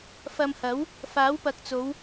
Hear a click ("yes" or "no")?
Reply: no